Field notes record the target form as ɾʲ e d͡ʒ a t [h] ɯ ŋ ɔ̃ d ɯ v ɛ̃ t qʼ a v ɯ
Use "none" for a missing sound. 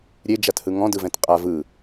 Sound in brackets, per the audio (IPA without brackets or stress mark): h